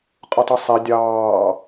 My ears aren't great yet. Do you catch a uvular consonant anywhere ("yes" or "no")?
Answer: yes